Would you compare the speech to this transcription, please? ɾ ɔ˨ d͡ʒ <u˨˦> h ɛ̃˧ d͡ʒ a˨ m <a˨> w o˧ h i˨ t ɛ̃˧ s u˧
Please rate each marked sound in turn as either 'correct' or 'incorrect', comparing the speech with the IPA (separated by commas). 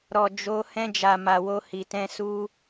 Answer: incorrect, correct